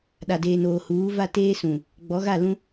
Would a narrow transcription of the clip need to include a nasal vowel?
yes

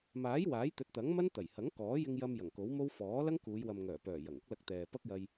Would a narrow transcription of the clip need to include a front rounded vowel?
yes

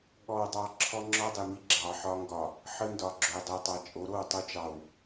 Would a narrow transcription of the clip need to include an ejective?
yes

